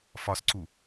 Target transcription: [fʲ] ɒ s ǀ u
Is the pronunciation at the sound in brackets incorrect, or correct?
incorrect